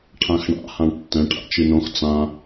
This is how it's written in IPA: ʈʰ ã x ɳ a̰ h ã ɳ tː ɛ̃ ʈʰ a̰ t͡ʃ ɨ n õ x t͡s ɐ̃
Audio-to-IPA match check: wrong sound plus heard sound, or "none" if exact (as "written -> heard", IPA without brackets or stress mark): ɐ̃ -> ã